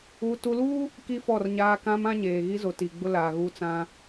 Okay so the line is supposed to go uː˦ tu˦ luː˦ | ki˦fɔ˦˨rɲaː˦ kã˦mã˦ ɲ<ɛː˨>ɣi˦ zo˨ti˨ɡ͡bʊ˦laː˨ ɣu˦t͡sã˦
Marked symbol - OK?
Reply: no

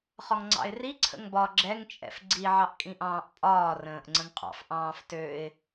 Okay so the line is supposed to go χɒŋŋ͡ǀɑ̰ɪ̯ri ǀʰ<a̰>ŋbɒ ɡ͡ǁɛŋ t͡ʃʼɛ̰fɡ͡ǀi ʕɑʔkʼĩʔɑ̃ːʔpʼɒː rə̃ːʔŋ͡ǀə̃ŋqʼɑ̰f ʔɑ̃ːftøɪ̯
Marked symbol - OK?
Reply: no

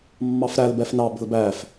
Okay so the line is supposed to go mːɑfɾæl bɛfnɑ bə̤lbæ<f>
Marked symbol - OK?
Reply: yes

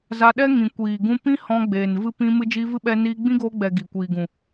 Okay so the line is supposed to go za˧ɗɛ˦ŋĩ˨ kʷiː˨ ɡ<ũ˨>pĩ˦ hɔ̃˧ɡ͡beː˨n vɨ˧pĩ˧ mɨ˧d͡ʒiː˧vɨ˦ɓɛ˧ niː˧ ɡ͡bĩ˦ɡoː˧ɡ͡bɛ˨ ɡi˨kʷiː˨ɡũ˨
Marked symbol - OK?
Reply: no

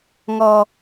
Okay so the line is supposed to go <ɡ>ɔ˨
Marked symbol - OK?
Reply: no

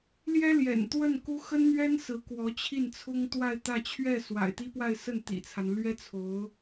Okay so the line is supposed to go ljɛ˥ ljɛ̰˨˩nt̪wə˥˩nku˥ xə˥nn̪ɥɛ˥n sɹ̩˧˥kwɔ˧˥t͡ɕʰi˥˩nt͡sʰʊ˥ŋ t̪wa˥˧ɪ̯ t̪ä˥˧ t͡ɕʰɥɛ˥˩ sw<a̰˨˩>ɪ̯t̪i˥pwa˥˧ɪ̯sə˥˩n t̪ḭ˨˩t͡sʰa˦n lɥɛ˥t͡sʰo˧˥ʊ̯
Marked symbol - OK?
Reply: yes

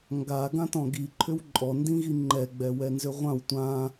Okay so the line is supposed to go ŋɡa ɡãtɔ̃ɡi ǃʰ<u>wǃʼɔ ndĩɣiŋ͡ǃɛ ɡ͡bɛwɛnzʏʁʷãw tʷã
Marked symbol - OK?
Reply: no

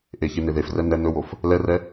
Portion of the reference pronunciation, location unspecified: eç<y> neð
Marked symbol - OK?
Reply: no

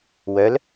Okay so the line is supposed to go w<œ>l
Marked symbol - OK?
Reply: yes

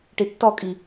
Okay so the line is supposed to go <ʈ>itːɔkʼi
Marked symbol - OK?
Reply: yes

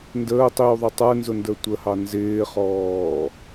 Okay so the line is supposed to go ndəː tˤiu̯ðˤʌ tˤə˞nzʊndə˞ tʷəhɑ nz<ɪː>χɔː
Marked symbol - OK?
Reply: yes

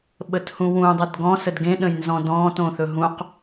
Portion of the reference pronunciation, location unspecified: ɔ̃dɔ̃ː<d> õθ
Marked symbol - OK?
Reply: no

